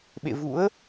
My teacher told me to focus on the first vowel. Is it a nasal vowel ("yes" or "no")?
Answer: no